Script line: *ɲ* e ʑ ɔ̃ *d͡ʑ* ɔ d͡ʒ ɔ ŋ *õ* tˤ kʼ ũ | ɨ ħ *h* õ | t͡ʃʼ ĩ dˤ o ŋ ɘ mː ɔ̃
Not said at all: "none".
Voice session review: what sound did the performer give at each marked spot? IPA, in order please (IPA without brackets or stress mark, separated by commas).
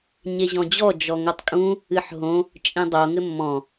ɲ, d͡ʑ, o, ɦ